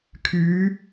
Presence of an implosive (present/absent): absent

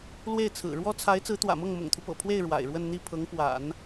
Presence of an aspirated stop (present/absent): present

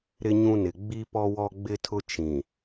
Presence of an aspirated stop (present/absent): present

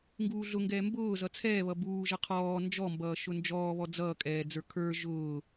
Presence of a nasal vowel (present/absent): absent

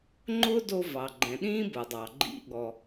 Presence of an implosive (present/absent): present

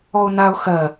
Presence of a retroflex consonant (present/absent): absent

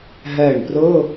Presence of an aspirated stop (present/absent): absent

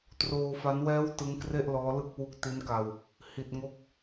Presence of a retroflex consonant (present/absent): absent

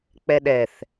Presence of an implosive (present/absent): present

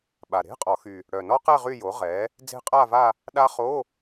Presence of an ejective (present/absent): present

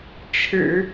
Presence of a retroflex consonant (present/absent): present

